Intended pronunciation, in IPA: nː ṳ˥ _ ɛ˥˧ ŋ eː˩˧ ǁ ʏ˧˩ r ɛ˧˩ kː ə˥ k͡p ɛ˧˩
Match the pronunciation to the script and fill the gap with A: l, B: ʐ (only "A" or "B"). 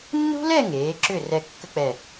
A